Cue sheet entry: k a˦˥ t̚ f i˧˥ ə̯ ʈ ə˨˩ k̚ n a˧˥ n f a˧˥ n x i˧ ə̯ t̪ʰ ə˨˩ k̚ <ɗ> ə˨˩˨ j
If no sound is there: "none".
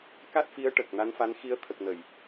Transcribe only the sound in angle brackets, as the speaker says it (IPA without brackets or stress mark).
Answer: n